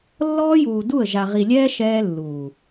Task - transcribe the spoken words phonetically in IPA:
lː ɔː˦ j uː˨ d u˦˨ ə̯ ʒ a˨ ʁ i˨ lʲ ɛː˦ ʃ ɛː˦ lː uː˨

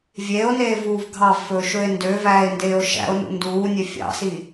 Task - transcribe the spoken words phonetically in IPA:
vʲ eː o̯ n eː v uː v ɡʱ ɑ v f ɵː ʃ ɵ e̯ n d ø v æː e̯ n d eː o̯ ʃ æ̰ o̯ n ṵ n d uː nʲ ø fʲ ɑ̰ s iː

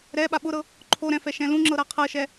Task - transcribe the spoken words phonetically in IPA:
ɾ ɛ ɓ a ɓ ʊ ɾ ɤ | ǃʰ o ɾ ɛ̃ f ɛ ʃ ɛ̃ l ũ ŋ͡ǁ ɤ ɾ a qʰ ɤ ʃ ɛ

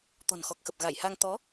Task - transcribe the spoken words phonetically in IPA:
t̪ ɔ̤˨˩ n x ɔ˨˩ k̚ x ə˨˩ p̚ ɣ a˧˩ j h a˧ ŋ t̪ ɔ˨˦

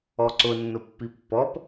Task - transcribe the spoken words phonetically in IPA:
ɔ ǀ ʊ nː ʊ pː i pː ɔ p

